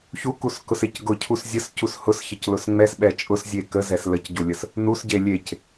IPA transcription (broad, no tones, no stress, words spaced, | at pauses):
çukuskʊsec ɡʊcʰus zʲəscus hʊsçəclʊs ŋ͡mɛsɓɛ t͡ʃʼʊszʲe kəzɛs ləcɟulʲəs | nusɟe lʲec